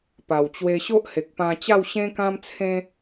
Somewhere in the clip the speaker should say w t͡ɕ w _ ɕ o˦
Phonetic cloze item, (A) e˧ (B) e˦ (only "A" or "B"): A